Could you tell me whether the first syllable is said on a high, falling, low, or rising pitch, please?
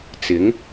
rising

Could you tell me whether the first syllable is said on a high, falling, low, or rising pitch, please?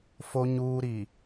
low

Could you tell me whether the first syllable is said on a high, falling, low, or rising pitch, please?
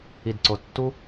low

